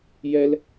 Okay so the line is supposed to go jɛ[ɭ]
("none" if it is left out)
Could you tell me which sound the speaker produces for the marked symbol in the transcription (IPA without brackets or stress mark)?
l